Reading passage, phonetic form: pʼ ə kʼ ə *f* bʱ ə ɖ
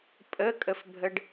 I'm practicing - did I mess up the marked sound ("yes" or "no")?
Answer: no